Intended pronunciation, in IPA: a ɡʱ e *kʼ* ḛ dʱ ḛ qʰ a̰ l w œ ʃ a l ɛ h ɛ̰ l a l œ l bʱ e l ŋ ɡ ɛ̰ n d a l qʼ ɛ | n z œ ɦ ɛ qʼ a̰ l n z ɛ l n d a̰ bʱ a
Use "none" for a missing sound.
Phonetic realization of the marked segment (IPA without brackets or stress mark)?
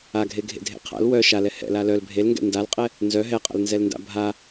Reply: ɡʱ